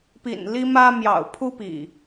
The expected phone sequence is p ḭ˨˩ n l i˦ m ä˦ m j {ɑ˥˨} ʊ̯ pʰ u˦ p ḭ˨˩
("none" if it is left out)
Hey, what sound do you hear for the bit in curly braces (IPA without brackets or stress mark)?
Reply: ɑ̰˨˩